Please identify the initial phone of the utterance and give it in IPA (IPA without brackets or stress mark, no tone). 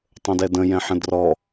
tˤ